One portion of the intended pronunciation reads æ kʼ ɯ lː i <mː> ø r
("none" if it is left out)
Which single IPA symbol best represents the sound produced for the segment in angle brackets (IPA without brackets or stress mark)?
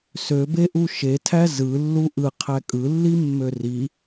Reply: mː